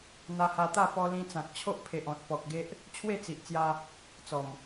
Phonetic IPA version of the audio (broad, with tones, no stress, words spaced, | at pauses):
n̪a˧ha˧ t̪a˥˧pɔ˧lĩ˧t͡sã˨k̚ t͡ɕʰo˦ʔpʰe˨ʔɔ̃˨t̚ pɔ˨k̚ɡe˦ʔ | t͡ɕʰwe˥˧t͡si˨ʔt͡sja˧ | t͡sɔ˨˩m